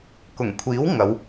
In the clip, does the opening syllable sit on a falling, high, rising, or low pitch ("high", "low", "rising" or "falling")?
low